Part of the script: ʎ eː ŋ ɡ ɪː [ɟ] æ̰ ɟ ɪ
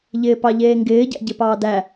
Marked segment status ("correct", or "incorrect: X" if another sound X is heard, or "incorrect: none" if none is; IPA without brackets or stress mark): correct